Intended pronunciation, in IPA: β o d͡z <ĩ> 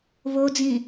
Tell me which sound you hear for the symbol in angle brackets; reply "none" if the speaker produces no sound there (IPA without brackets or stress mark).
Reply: ĩ